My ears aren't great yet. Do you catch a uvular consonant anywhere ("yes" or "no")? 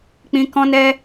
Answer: no